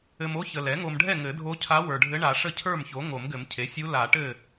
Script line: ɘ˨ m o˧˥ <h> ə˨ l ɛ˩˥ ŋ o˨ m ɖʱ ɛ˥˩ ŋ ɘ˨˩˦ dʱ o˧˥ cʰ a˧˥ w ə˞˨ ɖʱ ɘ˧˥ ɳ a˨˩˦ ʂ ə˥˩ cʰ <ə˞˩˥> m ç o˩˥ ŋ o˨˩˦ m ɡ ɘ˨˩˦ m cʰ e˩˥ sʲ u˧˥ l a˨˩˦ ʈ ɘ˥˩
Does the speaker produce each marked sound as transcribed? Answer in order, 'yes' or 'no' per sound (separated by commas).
no, no